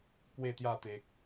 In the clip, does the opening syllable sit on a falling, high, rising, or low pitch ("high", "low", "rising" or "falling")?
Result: falling